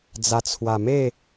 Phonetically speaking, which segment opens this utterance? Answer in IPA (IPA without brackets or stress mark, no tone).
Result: d͡z